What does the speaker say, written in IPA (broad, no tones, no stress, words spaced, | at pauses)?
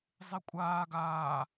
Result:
zˤekʷʼaː ɡaː